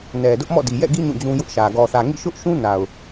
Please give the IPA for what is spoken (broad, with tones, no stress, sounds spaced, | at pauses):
n ɛ˨ d ʊ˦ ʔ m ɔ̰˦˨ d i˨ j ɛ̰˦˨ ɡ i˦ ɲ ũ˦˨ d͡ʑ ũ˦ j ʊ˦ ʔ ʃ ä˨ ɡ ɔ˨ θ ä˨ ŋ ḭ˦˨ ʃ ʊ˦ ʔ ʃ ũ˦ n a˨ ʊ̯